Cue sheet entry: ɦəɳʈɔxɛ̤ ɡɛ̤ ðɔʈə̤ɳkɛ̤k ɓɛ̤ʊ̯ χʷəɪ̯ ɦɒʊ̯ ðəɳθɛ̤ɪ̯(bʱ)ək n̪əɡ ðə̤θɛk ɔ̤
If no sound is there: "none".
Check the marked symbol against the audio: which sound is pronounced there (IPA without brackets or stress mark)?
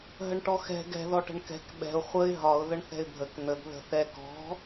bʱ